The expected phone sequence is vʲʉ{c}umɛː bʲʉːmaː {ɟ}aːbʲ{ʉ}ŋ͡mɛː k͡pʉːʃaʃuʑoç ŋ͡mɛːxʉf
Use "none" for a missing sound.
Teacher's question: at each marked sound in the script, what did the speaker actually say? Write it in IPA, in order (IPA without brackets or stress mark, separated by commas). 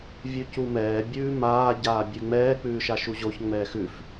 c, ɟ, ʉ